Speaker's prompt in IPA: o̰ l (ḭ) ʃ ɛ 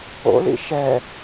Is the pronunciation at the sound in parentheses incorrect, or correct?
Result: correct